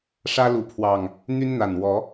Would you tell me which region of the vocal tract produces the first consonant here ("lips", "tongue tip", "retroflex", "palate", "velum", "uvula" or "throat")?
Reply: retroflex